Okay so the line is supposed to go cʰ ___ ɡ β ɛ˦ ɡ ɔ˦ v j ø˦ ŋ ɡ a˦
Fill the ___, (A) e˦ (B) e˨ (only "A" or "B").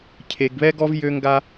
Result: B